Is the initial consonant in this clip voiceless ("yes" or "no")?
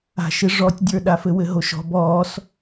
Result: yes